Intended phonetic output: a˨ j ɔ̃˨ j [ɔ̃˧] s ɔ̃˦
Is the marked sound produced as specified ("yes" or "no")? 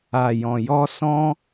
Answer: no